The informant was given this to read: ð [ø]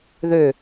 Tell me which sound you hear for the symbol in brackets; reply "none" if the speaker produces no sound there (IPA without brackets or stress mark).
ø